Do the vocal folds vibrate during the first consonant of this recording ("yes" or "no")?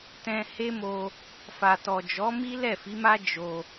no